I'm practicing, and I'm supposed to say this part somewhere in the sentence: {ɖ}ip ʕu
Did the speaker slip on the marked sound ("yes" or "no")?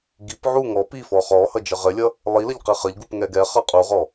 yes